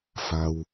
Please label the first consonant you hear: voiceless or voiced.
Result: voiceless